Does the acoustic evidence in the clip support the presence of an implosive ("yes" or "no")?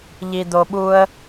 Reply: yes